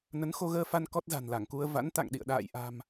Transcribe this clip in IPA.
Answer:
n ə˨˦ n x o˧ ɣ əː˧ f a˧ n k ɔ˦˥ t̚ z a̤˨˩ n l a˧˩ ŋ k u˧ ə̯ v a̰˧˥ n t̪ a̰˧˨ ŋ ɗ ḭ˧˨ ə̯ ɗ a̰ː˧˨ j ʔ a̤˨˩ m

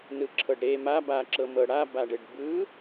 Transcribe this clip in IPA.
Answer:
n ɯ ǁʰ ɤ ɖ ɾ e m a b a ǁ ɤ m ɤ ɽ a b a ɖ e ɖ b ɯ

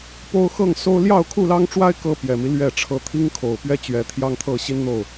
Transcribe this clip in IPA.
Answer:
p o˦ ʊ̯ x ɤ˥˨ ŋ s o˦ ʊ̯ l j ɑ˥˨ ʊ̯ kʰ u˥˨ l ɑ˦ ŋ ʈ͡ʂ w a˦ ɪ̯ k ɤ˦ p j ɛ˨˩ m i˦ l ɥ ɛ˥˨ ʈ͡ʂʰ ɤ˦ t̪ʰ i˦ ŋ kʰ o˨˩ ʊ̯ p ɥ ɛ˦ t͡ɕ ɥ ɛ˨˦ t̪ʰ j ɑ˦ ŋ t̪ʰ ɤ˥˨ ɕ i˦ n n̪ o˥˨ ʊ̯

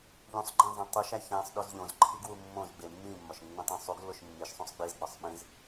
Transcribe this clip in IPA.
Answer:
ʎ ũ sˤ ɡ͡ǃ ẽ zˤ æ̃ tˤ u ʃ æ ç æ̃ sˤ ɗ o z ʎ õ z ǃʰ i ɡ w u mː õ z ɡ͡b e mː ĩ mː ɒ ʃ nː ũ tˤ ũ sˤ u ɡ lː o ʃ mː i ʃ sˤ ũ sˤ ɡ͡b i z ɡ͡b ɒ sˤ ɓ ĩ z

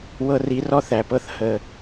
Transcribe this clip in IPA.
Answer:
w ɤ˧ r i˨˦ r ɔ˦ θ æ˨ p ɤ˧ θ h ə˨

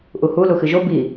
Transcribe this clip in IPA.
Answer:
ʔ u h u l u x ɨ ʒ o b i

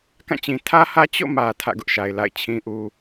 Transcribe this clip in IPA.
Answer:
k ã˦˨ t͡ɕ ĩ˨ tʰ ä˦ h ä˦ t͡ɕ o̰˦˨ m ä˨ tʰ ä̰˦˨ ɡ ʊ˦ ʔ ʃ a˨ ɪ̯ l a̰˦˨ ɪ̯ t͡ɕʰ ĩ˦ ʔ u˦

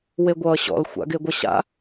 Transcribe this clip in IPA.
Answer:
w e ɡʷ ʌː ɕ ɔ̰ l xʷ a̰ ɡ e ɡʷ ʌ ɕ a̰

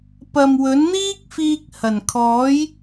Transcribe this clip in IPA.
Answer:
p ɐ˨ m w ɵ˨˥ n n̪ iː˥ k̚ f iː˧ k̚ h ɐ˨˩ n kʰ ɔː˨˥ j

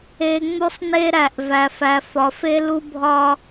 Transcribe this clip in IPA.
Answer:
e˨ ŋ͡m u˦ sˤ n e˦ ɾ æ˨ ʔ v æ˨ f æ˨ f ɒ˨ f e˦ l u˦ bʱ ɒ˦

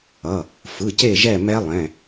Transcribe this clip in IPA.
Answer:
ʌ˩˧˩ | f ɯ˩˧˩ c e˦˨ ʒ ɛ˦˨ m ɛ˦˥ lˠ ɛ̃˩˧˩

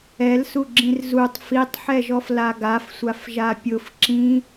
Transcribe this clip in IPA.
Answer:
ɛ l s u ɡ͡ǁ ĩ r z u tˤ f i tˤ ħ ɛ ʒ ɔ f l a ɡ a f sʷ a f ʒ a pʲ ʊ f ǁ ĩ

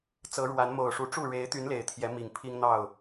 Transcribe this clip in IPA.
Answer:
t͡s ɤ˨˦ ɻ w a˨˦ n m o˨˩ ʊ̯ ʂ u˨˦ ʈ͡ʂ u˥˨ ɻ e˨˦ ɪ̯ t̪ y˨˦ n l e˨˩ ɪ̯ t̪ʰ j ɛ˨˦ m i˨˩ ŋ pʰ i˦ ŋ n̪ ɑ˥˨ ʊ̯

